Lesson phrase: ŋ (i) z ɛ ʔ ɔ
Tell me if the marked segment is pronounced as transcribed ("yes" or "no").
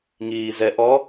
no